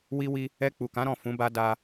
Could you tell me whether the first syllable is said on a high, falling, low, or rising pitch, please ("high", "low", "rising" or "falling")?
high